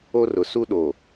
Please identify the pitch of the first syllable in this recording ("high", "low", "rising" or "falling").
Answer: high